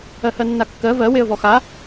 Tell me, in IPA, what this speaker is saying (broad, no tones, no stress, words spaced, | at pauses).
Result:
ɜhɜnːakːɜ vɜ weə̯vɔxa